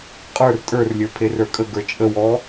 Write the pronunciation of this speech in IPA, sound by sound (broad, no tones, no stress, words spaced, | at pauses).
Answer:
qʼə˞r tʼə˞rlʲə˞ pʰerə˞kʼəɡə˞ t͡ʃʼəwɔ